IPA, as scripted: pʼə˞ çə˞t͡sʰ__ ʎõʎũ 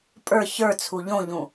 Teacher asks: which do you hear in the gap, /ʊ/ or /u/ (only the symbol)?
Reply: u